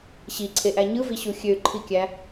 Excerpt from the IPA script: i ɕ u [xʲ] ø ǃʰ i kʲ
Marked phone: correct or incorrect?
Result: correct